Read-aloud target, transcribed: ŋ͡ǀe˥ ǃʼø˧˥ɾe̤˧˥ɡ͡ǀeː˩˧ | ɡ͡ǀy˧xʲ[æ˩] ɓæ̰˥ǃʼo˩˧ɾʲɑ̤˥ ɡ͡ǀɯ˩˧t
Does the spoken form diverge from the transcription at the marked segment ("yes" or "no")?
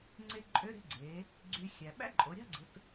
no